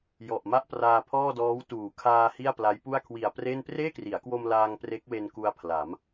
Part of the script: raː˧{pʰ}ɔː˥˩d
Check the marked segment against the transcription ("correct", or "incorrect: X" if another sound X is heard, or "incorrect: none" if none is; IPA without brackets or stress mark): correct